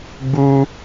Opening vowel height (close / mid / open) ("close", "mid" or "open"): close